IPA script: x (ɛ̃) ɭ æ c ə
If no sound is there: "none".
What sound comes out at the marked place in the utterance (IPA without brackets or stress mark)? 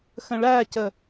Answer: ə̃